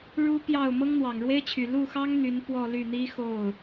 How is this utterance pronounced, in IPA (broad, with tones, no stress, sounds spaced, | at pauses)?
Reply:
ɻ u˥ p j ɑ˥˩ ʊ̯ m ɤ˥ ŋ n̪ w ɑ˨˩ ŋ ɻ w e˥ ɪ̯ t͡ɕʰ y˨˩ l u˥˩ x ɑ˥ ŋ n̪ y˧˥ n p w ɔ˥˧ l y˥˩ n̪ i˥ x o˥˩ ʊ̯